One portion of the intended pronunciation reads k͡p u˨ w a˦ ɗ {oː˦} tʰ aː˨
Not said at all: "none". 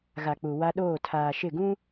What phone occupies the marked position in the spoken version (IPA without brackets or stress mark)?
oː˦˨